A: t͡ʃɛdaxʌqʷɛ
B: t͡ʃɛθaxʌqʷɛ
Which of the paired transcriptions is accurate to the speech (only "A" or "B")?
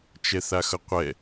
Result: B